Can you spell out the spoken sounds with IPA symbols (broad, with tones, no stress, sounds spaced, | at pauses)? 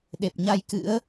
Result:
ɗ e˨˩ p̚ ɲ a˧ j k ɨ̰˧˥ ə̯